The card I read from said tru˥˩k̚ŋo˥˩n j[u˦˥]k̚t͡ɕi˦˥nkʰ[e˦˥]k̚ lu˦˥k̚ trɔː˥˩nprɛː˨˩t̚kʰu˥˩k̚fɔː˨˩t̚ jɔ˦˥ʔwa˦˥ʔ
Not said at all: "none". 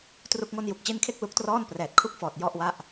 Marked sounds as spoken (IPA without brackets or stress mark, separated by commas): u˨˩, e˥˩